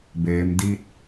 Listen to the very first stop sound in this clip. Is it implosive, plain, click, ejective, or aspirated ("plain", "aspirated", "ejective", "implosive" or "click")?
plain